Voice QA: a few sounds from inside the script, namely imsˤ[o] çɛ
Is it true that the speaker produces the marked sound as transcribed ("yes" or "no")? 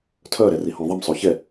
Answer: yes